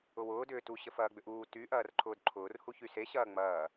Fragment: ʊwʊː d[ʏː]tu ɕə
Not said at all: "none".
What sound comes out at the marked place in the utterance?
ʏː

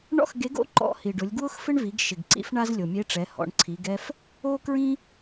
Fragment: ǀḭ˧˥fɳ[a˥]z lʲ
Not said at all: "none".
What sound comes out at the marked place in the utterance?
a˥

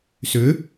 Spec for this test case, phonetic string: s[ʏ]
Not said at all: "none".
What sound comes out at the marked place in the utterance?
ʏ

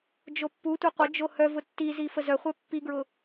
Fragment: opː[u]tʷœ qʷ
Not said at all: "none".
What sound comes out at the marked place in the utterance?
u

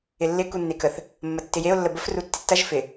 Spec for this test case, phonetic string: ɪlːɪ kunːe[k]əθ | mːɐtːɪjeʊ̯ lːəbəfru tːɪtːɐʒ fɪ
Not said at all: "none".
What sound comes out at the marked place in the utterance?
k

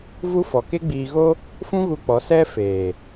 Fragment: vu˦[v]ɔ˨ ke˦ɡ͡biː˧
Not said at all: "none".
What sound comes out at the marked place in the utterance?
f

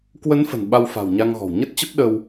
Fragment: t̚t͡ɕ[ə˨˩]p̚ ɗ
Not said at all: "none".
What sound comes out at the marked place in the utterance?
ə˦˥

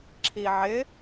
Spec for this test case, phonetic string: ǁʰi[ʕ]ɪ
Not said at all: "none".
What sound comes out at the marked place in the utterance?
ʕ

